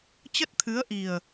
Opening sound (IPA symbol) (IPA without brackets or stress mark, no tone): t͡ɕ